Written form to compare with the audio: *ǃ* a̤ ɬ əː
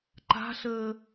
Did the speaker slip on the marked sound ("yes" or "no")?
no